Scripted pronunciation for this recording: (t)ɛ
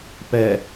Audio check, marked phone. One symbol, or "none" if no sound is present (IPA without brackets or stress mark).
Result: p